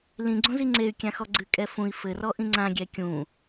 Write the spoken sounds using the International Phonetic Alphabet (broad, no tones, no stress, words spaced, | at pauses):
lĩɡ͡ǀõ ziŋ͡ǀey̯ kʲãxɔɡ͡ǀɨ kʼɛfũi̯ fɘrɔ ʔĩŋ͡ǀã ɡʲɛkʲũ